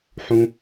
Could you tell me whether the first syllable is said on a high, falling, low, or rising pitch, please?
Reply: high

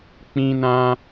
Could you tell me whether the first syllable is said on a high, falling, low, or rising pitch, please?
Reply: high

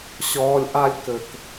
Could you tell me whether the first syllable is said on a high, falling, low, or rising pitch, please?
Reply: low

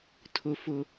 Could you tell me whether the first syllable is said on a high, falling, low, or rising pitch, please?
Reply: low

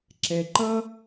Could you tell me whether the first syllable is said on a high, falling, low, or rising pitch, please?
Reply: low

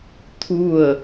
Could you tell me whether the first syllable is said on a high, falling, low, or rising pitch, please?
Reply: falling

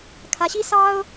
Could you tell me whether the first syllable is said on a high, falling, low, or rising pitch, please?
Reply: rising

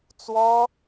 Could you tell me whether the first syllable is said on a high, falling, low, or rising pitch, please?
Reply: high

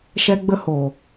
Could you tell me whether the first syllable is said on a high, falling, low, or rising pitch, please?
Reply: high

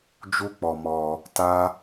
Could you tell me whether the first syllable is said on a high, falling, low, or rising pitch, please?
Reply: high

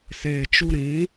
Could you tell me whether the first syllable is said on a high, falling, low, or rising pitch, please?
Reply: low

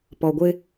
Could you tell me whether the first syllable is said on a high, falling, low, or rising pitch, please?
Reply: low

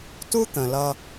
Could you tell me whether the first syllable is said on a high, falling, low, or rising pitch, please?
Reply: high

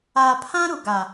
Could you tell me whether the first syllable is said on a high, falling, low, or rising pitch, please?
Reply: low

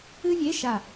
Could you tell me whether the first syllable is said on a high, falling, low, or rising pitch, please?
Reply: high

